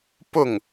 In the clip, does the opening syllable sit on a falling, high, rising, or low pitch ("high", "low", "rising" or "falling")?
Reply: falling